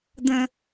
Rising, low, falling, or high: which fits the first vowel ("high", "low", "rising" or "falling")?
high